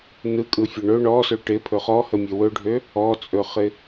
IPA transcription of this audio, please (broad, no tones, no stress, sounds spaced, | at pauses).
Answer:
n ɯ kʼ ɯ fʲ ɵ ɳ ɵ ɳ ɔ s ø ʈ ɪ pʰ ɵ χ ɔ h ə mʲ ø w ɵ ɖʱ ø | ɔ t͡sʼ ɵ χ ɪ